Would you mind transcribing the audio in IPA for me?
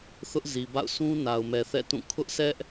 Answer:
θʊ˦ʔzi˨ba̰˦˨ʊ̯ sʰũ˦ na˨ʊ̯mɛ˨θɛ̰˦˨tũ˦˨ kʰʊ˦ʔsɛ˦ʔ

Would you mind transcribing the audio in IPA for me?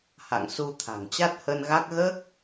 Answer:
ha̰˧˨ŋsu˧t̪ʰa̤˨˩ŋ t͡ɕa˦˥t̚hə˧nɣa˦˥k̚ ɣəː˦˥k̚

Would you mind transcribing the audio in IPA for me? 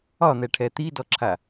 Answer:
ɒn̪ɛʈʰɛ t̪idɔǁʰa

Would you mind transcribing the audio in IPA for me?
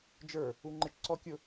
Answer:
d͡ʒə˞ | uŋ͡ǃɪt͡ʃ ǀɔ kʲʊ

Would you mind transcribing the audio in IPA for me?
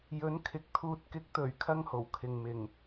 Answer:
jɵ˨˥nkʰɪ˨k̚ t̪ʰuː˨t̚kɪ˨˥k̚t̪ɵ˨˩ɥkʰɐ˧ŋ ho˨˩wkʰɪ˨ŋ mɪ˨˩ŋ

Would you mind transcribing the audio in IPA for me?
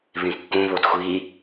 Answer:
βĩkːũ βodxʷi

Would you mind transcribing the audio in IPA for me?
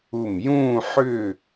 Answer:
u˧˩m jũː˥˧ħʏː˥˧

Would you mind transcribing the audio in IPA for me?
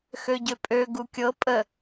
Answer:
xøɟøpʼø ɡukʲɤ pʼə

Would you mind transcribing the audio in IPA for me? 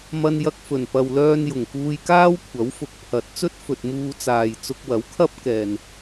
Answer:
mɐ˧njɐ˧k̚fɵ˨˩n pɐ˨wlœː˧n jʊ˨˩ŋkuː˧jkaː˥wkʷʰɐ˨˥w fʊ˨˥k̚pʰɐ˨˥t̚t͡sɵ˥t̚ fɵ˨t̚muː˧t͡saː˨j t͡sʊ˧k̚wɐ˨˥wkʰɐ˥p̚kɛː˨n

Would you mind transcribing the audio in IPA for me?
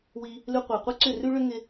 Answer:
wi˧ | lʉ˧qʷa˨qʷɪ˦ǀʏ˦˨ rʉ˦ɭʏ˦ŋɪ˧

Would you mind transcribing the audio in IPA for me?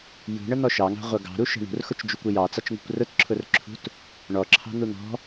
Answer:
jṳɳən̪ɔ ʃɑŋɑ̤ʁʷʌ ɡɑ̤ɾuʃə̤ ɳṳrxʊt͡ʃd͡ʒukʷɪ jɑt͡sɑt͡ʃŋṳkʷ rʊtǁʰʊrǁʰṳt | ɳɔǁʰɑ̤n̪u n̪ɔ̤

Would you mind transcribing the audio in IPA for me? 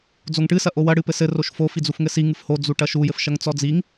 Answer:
d͡zoŋʈɨ sɐʔowɐ ɽɨpɘsɘ roʃfo fid͡zufŋɘsi ŋɨfho d͡zuʈɐʃu jɘfʃɐŋt͡sɔd͡ziŋ

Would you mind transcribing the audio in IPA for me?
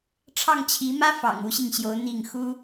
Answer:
ʈ͡ʂʰɑ˥˩ŋt͡ɕʰi˧˥mä˥ fɑ̰˨˩ŋ u˥ɕi˨ŋɕjo˧˥ʊ̯ n̪i˥˩ŋ xu˥

